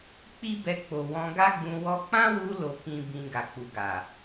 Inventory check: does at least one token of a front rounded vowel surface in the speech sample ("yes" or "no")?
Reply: no